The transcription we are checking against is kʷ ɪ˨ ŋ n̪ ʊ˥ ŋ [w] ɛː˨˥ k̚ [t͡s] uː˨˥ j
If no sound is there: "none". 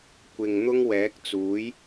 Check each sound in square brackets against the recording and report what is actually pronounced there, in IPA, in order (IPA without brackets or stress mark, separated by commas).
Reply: w, t͡s